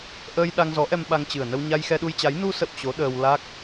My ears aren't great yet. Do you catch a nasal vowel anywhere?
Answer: no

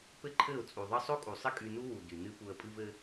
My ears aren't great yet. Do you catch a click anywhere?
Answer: yes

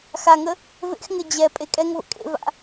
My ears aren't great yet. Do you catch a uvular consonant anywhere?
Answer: no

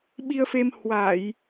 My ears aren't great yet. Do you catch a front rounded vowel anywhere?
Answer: no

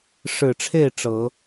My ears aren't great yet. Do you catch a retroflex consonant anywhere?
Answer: yes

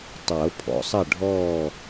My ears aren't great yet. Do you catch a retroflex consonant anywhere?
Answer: yes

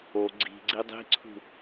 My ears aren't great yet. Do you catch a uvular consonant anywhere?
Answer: no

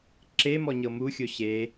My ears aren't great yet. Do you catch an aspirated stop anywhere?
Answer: no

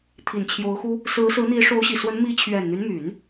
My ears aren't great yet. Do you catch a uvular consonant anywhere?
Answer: no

